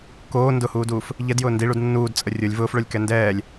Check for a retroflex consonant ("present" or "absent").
present